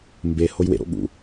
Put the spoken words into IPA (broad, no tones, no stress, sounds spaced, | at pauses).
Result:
m b e h o j w ḛ ɾ o̰ ɠ ṵ